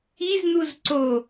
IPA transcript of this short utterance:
i z n̪ u z ǀ o

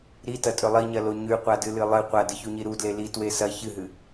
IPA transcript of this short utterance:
ɾ i t ɐ tʼ ɵ lˠ i ɲ ɐ l o ɲ ʉ qʷ a d ɨ l ɨ lˠ ɨ qʷ a d ɨ ç u ɲ i ɾ u d l e l i t w e s ɐ ç ɨ ɦ ɨ

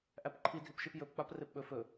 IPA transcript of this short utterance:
ʔ æ p ǃʰ i dʱ i p ʃ i p j ɵ p k͡p a p r e p ɓ ɵ f ɵ

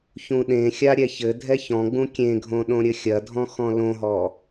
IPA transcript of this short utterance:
ç ũ ɗ ẽ xʲ a ɾʲ ɛ ç ɘ dʱ ɛ ç ɔ̃ ɡ͡b ũ kʲ ẽ ɡʱ õ ɗ õ ɾʲ ɘ xʲ ɐ dʱ ɔ̃ x ɔ̃ l õ ɦ ɔ

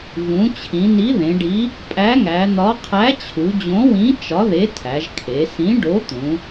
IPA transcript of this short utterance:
v ũ˩˧ t͡ɕʰ ĩ˩˧ n i˨˥ ð ẽ˩˧ ɖ i˨˥ | pʼ æ˨˥ ŋ æ˩˧ n̪ ɒ˨˥ qʰ æ˨˥ t͡ɕʰ u˩˧ d͡ʑ õ˨˥ w ĩ˨˥ t͡ʃ ɒ˨˥ ð e˨˥ tʰ æ˩˧ ʒ kʰ e˩˧ s ĩ˨˥ ɖ o˨˥ t̪ ũ˩˧

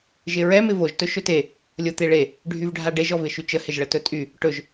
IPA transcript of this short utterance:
ʒ ɪ ɹ ɛ m ɪ v o ʒ t ɵ ʃ ɵ t e | lʲ o t̪ e ɭ e | ɖʱ y v ɖʱ a ɖ e ʒ ɔ v ɪ ʃ y t͡ʃ ə h ɪ ʒ ɭ ə t ɵ tʼ y | ʈ ɵ ʒ

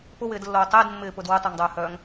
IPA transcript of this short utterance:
p ʊ w ɪː d lː oː tˤ ɪː d mː ɪː p ʊ d w ʊ tˤ œ ŋ dˤ œː h œː ŋ

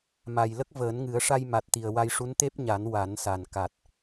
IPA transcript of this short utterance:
m a˨˩ j l ə˦˥ k̚ v əː˨˩˦ n ŋ ɨ˨˩˦ ə̯ ʂ a˧ j m a˨˩ t̚ t̪ i˨˩ ə̯ w a˧ j ʂ u˧˥ n t̪ e˦˥ p̚ ɲ a˨˩˦ n w a˨˩˦ n s a˨˩ n k a˨˩ t̚

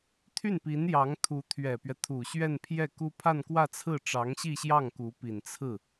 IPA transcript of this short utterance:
t̪ʰ y˥˩ n p i˧˥ n j ɑ˧˥ ŋ t̪ʰ u˧˥ t̪ʰ ɥ ɛ˨˩ p ɥ ɛ˦ t̪ʰ u˨˩ ɕ ɥ ɛ˥˧ n pʰ j ɛ˥˩ k u˥ pʰ a˥˧ n k w ä˥˧ t͡sʰ ɹ̩˥˩ ʈ͡ʂ ɑ˧˥ ŋ ɕ i˥˧ ɕ j ɑ˥˩ ŋ k u˧˥ p i˨˩ n t͡sʰ ɹ̩˥˩

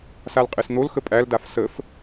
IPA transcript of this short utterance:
s a l qʼ ɨ s n̪ o l x ə pʼ æ l d a f s ə f

